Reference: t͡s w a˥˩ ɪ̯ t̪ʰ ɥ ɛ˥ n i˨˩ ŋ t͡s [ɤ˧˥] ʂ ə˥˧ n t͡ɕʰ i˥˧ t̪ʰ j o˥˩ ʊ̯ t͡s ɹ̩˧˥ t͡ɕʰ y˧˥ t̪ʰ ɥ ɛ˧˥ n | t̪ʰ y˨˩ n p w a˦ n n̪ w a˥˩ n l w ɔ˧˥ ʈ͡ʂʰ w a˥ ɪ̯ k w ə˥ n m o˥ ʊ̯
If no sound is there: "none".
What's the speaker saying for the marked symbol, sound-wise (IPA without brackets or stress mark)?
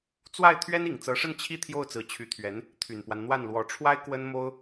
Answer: ɤ˧˥